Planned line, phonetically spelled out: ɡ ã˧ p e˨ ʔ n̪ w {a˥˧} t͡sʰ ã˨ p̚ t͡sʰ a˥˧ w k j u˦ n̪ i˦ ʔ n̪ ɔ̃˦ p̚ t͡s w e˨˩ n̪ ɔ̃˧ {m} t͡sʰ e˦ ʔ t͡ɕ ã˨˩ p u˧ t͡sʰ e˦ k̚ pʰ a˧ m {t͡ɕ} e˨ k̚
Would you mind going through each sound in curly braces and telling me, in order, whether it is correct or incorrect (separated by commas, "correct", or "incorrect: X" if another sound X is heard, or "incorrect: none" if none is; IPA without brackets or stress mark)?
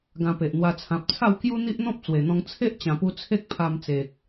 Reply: incorrect: a˧, incorrect: ŋ, incorrect: t͡s